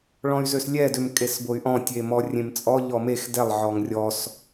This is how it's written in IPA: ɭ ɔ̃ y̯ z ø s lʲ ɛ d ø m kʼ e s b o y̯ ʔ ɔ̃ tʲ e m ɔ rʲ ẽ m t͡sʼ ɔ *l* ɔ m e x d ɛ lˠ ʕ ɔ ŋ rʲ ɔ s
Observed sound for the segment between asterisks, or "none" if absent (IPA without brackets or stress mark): ʎ